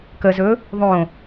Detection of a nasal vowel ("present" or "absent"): present